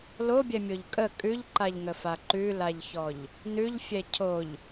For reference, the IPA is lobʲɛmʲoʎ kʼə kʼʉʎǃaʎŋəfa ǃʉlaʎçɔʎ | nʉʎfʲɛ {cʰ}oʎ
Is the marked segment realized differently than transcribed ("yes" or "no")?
no